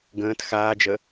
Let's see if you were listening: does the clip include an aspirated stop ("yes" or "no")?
no